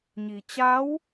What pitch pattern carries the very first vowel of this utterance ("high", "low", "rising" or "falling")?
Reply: low